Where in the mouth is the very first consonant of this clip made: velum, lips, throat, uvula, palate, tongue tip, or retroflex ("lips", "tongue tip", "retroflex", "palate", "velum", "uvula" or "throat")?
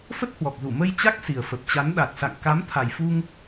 lips